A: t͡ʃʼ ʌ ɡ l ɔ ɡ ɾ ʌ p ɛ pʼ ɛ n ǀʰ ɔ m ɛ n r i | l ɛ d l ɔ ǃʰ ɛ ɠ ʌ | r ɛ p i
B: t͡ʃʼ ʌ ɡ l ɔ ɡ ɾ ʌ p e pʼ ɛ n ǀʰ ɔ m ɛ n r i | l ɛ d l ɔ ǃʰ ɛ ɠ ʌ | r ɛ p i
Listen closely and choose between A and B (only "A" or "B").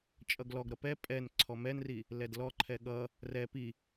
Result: A